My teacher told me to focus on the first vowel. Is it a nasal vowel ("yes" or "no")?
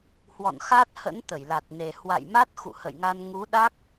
no